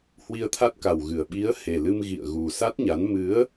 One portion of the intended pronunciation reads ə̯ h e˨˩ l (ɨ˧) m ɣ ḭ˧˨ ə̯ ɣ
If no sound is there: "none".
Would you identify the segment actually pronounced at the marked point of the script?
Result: ɨ˧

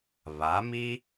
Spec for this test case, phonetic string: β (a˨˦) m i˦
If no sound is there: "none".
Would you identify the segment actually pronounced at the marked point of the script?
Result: a˨˦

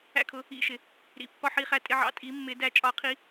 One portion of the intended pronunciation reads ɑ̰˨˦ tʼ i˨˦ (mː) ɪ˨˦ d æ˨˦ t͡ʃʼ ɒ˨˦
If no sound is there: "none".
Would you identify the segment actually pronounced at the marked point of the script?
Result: mː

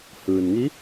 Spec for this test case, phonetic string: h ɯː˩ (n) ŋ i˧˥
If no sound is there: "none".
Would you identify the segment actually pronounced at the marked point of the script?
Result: n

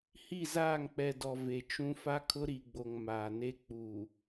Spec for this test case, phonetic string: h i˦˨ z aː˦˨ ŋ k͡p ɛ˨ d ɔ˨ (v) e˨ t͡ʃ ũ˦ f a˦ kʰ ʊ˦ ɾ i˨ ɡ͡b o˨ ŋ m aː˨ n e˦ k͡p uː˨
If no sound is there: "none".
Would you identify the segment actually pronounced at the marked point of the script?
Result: v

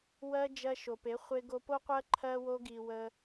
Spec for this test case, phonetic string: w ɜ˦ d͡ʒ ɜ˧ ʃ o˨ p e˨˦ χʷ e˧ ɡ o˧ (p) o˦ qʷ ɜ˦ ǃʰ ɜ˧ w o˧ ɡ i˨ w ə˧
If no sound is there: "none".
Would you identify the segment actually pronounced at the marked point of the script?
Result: p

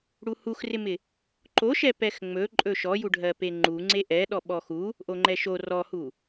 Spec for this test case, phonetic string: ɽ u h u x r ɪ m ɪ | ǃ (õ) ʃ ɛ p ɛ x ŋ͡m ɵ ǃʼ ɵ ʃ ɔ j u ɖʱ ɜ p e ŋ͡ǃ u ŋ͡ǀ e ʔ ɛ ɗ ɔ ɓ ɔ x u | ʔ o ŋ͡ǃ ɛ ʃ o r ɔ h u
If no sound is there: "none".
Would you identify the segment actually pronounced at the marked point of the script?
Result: o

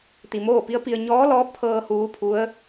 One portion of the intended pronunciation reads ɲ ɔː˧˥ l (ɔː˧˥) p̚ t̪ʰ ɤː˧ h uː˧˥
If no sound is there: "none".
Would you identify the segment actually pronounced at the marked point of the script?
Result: ɔː˧˥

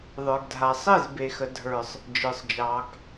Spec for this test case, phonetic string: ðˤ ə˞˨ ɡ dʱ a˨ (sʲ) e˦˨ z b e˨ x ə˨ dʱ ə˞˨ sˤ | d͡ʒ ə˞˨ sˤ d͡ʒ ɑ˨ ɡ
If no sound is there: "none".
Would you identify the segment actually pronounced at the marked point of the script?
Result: sˤ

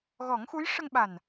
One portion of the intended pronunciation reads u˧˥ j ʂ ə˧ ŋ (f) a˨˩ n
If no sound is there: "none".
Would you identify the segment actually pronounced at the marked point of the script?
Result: ɓ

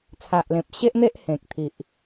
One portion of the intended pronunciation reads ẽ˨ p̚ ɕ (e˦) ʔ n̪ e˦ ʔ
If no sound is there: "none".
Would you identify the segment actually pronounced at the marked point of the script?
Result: e˦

